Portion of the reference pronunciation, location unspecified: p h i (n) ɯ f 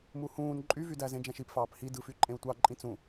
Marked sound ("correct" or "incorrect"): incorrect